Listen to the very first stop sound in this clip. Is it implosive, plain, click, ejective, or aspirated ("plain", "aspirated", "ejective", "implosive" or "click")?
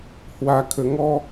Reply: aspirated